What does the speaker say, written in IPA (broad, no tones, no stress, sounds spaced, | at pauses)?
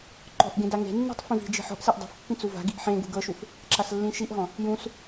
ǃ ɔ̤ ʔ ɡ ẽ d a ŋ e̤ nː e̤ tˤ f ĩ v i̤ d͡ʒ i̤ ħ ɔ̤ ʔ s e ʔ dˤ a̤ f pː ĩ t͡s u v a̤ ɡ i ʔ ħ ẽ ɡ ṳ ɡ ɤ ʃ u f | ǁ a s lː ĩ ʃ i ʔ ɦ ɔ̃ | j ũ s